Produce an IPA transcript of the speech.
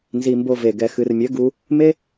nzi˧mbo˧ve˨ ɡɛ˨xɨ˨rmʲɘ˨˦ ɡu˧ | me˦

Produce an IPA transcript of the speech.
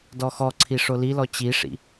dɔxɔǀʰi ʂolilɔ t͡ɕiʂḭ

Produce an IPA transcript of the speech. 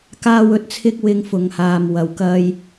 kaː˥wɵ˥t̚t͡sʰɪ˥k̚ wɪ˥ŋfʊ˧ŋ haː˧m wɐ˨wkɐ˥j

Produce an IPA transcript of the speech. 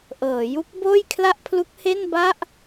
ʔɤː˩˦ju˦˥k̚boː˥˩j kʰla˥˩ʔpʰlu˦˥k̚ he˥˩nba˥˩ʔ

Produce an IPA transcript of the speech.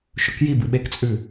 ʃɵkji bɨɓekt͡sʼʉ

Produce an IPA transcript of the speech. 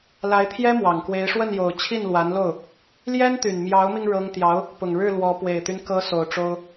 la˧˥ɪ̯t̪ʰjɛ˥ mwɑ˨˩ŋkwe˧˥ɪ̯ ʂwə˥˩njo˨˩ʊ̯ t͡ɕʰi˥˩nlwa˧˥nlo˥˩ʊ̯ | ljɛ˥nt̪y˨˩nmjɑ˧˥ʊ̯mi˧ŋ ɻɤ˥ŋ t̪jɑ˧˥ʊ̯ | pʊ˨˩ŋɻɻ̩˥˩ lwɔ˧˥ pwe˨˩ɪ̯t̪y˦n kɤ˧˥ so˨˩ʊ̯ʈ͡ʂo˥ʊ̯

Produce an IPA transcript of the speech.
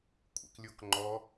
kʷʼɛ̰klʲokŋ͡ǃɔ

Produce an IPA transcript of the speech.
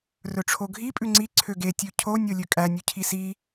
rɵʈ͡ʂʰoɡʱi pʼʉŋ͡ǀi ǀʰøɡe tʲʉcʰo nʲolʲøkʼæ nʲʉcʰisi

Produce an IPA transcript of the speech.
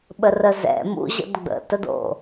ɓərəzɛ̰ mṵ ʑə̰dɡ͡bə̰ tədo̰

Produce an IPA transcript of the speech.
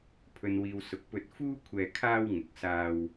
pʰɵ˨nwiː˨wsʊ˨˥k̚ pɵ˧t̚fuː˥kʷʰɛː˧ kʰaː˧w ŋʊ˨k̚ saː˧w

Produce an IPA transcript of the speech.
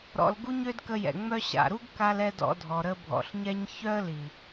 ɾɔ̰˧l ɡu˦ɲø˦dkə˧jɛ̰˨ ŋ͡mœ˦ɕa̰˨ ɾu˦ɡka˧lɛ˧ dɔ̰˧dʱɔ˨ɾə˧ bʱɔ̰˨ɬɲɛ˦ɲ çœ˦ə̯li˨

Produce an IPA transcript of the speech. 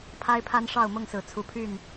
pʰa˦ɪ̯pʰa˦nʂɑ˥˨ʊ̯ mʊ˥˨ŋsɹ̩˨˩ t͡sʰu˨˦pʰy˥˨n

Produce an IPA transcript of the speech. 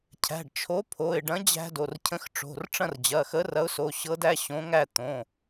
cʰæ̤˩˧˩ɖt͡ʃʰo˨˥pʰo˩˧˩ɪ̯ɖɐ̃˨˥ d͡ʑæ̤˦do˩˧˩r cʰə̃˨˥xʈ͡ʂo̤˩˧˩r ʈ͡ʂɐ̃˥˩rd͡ʑɐ˩˧˩xə˨˥ rɐ˨˥ʊ̯so˩˧˩ɕɤ˨˥ dæ˦ɕõ˨˥ŋæ˥˩ t̪õ˩˧˩

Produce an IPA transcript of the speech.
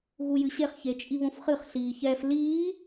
ɣujɨɕeχçe t͡ʃʼiβõfχɨχɬiː çɛf liː

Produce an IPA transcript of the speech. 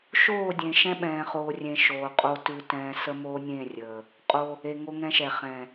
ʃoː˦˨dʲẽ˨ ʃɛ̃˦ɓɛ̃ː˨χoː˨rʲẽ˨ ʃoː˨qʼo˦ tʉ˦tɛ̃ː˦ sə˦moː˦nʲẽ˦˨ rʲəː˨ | qʼo˦ | e˨ŋo˦ŋɛ̃˦ʃɛ˨ χɛ̃˨

